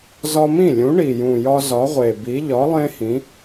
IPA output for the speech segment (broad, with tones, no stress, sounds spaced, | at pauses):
z ɒ˦ m ĩ˥˩ lʲ ũ˨˥ ɳ i˨˩ j ũ˨˩ j ɒ˦ z ɒ˨˥ ʁʷ e˨˩ b i˨˥ ʎ ɒ˨˥ lˠ ẽ˦ h ĩ˨˥